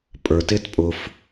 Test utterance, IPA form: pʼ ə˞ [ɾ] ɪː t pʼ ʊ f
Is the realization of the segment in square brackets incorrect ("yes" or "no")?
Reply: yes